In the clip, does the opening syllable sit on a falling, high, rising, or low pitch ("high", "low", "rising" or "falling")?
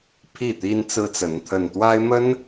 falling